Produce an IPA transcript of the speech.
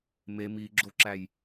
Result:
m e m i ɡ͡ǁ o ǁ æ j

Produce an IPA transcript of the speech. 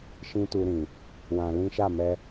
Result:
ʃ ĩ˦ t u˧ ɾ ĩ˨ | w ã˧ l ĩ˦ ʃ a˦˨ m ɛ˧

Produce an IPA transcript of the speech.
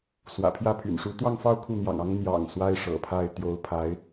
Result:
s w ä̰˨˩ pʰ j ä˥˩ pʰ y̰˨˩ n ʂ u˧˥ t̪ w ɑ˥˧ ŋ f ɑ˥˧ ʊ̯ kʰ u˥˩ n̪ j ɑ̰˨˩ ŋ ɑ˥ ŋ n̪ j ɑ̰˨˩ ŋ s w a˥ ɪ̯ ʂ ɤ̰˨˩ pʰ a˥˩ ɪ̯ t̪ j o˧˥ ʊ̯ pʰ a˧˥ ɪ̯

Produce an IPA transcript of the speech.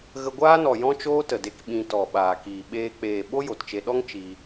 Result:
ɣ ə˧ ɡʷ aː˦ n ɔ˨ j ɔ̃˦ t͡ʃ oː˦ t ə˨ d e˧ k ɓ ĩ˧ t ɔ˨ ɓ aː˨ k iː˨ ɓ eː˧ k͡p eː˨ ɓ o˦ j o˨ t t͡ʃ e˧ ɗ ɔ˦ ŋ t͡ʃ iː˧

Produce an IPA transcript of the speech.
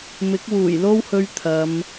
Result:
m ɪ˨˥ k̚ w uː˨˩ j l o˥ w h ɵ˧ ɥ t̪ʰ ɐ˨˧ m

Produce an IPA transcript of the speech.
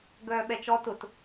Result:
ɡ œː ɓ ɛ t͡ʃ ɔ t ʊ t

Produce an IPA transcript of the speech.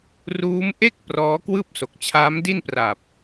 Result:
r uː˦˥ m ʔ e˥˩ k̚ p r ɔː˦˥ k w ɯː˥˩ p̚ s o˨˩ k̚ t͡ɕʰ aː˦˥ m d i˥˩ n p r a˨˩ p̚

